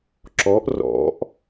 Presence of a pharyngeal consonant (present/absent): absent